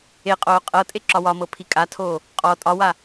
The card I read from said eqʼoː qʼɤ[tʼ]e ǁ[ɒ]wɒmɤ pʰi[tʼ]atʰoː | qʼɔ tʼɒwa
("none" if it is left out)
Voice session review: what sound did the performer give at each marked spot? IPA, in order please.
tʼ, ɒ, kʼ

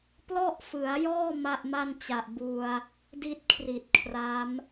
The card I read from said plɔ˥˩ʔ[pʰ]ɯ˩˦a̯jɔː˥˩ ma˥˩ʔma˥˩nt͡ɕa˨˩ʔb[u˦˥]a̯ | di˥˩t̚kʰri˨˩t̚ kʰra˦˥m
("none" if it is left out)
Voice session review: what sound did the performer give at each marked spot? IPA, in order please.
f, u˧

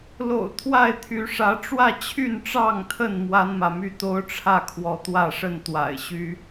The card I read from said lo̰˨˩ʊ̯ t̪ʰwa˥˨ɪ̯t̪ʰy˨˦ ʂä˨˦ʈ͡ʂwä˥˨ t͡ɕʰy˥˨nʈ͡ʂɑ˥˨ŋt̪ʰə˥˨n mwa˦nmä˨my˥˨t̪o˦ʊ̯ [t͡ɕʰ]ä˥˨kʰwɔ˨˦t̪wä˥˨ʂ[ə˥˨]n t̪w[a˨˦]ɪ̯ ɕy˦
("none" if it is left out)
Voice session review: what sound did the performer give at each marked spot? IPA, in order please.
ʈ͡ʂʰ, ə˥˨, a̰˨˩

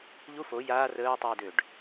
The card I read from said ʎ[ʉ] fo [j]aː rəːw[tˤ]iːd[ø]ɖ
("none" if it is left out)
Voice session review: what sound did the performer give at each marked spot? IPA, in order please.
u, j, tˤ, ø

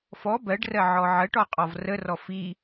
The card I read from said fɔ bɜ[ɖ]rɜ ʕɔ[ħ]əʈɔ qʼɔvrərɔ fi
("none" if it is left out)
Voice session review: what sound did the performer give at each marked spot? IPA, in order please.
ɖ, ʕ

